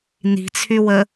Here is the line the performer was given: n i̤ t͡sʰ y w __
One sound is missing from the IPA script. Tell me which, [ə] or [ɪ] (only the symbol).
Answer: ə